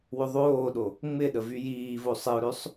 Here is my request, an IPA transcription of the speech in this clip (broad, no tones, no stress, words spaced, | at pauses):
wʏðˤoːɗo | ŋ͡mɪɗə vyjiːvo sˤɪʊ̯ɾøsˤ